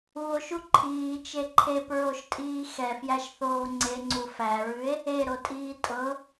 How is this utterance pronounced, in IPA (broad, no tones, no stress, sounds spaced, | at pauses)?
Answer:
u o̯ ʃ u ǃʰ iː t͡ʃ e ǃʰ e p ɹ o ʃ tʼ iː x ɛ f j æ ʃ θ oː ŋ͡ǀ e ŋ͡ǀ u f æ ɹ ʉ e̯ | e ɾ o tʼ iː tʼ ɤ